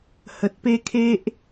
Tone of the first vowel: low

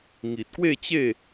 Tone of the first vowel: low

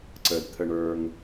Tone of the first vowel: low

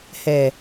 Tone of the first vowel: low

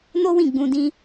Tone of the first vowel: high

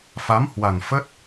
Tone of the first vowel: rising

